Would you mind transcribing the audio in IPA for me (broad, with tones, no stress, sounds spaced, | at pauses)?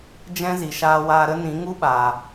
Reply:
d͡ʒ ɛ̃˦ z i˨ ʃ aː˧ w aː˧ ɾ ə˦ n ĩ˨˦ ŋ u˦ ɓ aː˨